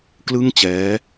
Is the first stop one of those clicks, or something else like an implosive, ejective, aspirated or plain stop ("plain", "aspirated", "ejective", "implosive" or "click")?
plain